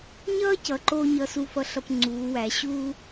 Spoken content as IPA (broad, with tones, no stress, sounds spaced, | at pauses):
ɲ ʌː˦ c ʌ˨ ǃ o˦ ɲ ʌ˨ s u˨ f ʌ˨ ɬ ʌ˨ p ŋ͡ǀ uː˨˦ w æ˨ ɕ uː˦